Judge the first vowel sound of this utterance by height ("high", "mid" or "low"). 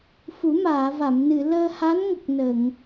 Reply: high